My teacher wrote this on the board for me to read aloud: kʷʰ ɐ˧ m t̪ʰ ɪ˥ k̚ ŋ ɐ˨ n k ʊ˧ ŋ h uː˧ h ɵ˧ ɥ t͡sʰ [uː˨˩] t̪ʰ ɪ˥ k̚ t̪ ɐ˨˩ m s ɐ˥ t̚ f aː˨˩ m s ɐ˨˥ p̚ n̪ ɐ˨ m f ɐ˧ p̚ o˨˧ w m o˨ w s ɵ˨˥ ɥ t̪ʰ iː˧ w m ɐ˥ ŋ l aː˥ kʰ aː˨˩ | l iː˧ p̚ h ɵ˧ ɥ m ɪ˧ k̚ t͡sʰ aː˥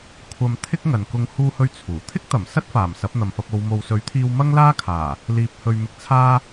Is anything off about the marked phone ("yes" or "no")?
no